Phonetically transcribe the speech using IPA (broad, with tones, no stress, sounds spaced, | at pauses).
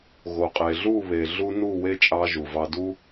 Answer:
ɣ o˨ qʼ e˨ ɮ u˦˨ β e˨ ɮ u˦ n u˦˨ w e˦ t͡ʃʼ ɑ˧ ʒ u˨ v ɑ˧ d u˦